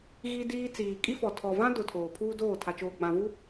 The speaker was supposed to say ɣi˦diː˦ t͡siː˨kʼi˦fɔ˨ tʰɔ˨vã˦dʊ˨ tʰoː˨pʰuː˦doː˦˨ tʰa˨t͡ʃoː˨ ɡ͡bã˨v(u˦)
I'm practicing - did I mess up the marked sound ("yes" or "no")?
no